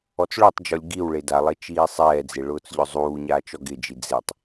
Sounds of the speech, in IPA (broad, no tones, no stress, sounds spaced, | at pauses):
ɔ t͡s ɭ o tˤ d͡ʒ ɔ lʲ ɡ i w ɭ e d a lˠ e t͡ʃ iː sˤ ɛː d͡z e ɭ ʊː t͡s ʎ ʊ zˤ uː ɲ aː t͡ʃ ɔ ɡ ɪ d͡ʒ i d͡z e tˤ